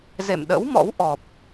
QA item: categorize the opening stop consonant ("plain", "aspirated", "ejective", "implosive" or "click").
implosive